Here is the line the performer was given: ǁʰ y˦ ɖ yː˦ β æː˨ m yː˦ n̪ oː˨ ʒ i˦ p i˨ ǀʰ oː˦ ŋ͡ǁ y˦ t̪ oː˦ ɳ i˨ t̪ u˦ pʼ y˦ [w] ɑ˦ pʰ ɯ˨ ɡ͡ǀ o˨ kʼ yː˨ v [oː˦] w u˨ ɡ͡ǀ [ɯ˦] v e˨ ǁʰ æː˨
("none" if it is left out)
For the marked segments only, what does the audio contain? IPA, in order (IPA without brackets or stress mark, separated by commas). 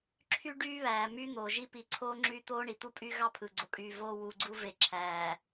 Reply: ɣ, oː˦, u˦